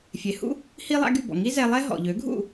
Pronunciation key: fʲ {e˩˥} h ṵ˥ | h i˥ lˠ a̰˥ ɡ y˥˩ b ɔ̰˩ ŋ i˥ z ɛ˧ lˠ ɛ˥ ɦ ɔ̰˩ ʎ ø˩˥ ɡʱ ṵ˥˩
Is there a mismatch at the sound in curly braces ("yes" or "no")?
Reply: no